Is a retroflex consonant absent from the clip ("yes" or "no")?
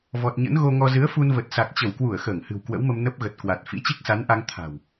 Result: yes